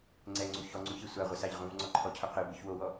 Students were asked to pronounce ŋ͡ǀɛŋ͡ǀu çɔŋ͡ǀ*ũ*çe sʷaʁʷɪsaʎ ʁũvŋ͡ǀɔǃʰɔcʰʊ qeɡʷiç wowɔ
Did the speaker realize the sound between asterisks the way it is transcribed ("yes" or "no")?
yes